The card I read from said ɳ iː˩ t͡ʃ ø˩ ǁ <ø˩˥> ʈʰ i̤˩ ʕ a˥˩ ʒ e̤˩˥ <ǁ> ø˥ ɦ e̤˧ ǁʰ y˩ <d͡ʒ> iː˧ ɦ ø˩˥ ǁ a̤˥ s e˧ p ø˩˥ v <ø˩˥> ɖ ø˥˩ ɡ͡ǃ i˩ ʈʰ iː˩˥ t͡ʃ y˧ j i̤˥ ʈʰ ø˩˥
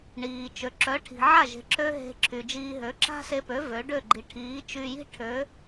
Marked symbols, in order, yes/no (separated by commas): no, yes, yes, yes